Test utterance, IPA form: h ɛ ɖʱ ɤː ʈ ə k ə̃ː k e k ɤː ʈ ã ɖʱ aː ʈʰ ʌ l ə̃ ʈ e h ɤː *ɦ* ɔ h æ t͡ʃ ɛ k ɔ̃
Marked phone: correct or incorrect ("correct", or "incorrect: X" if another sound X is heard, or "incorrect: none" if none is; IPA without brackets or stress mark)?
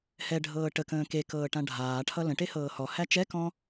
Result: incorrect: h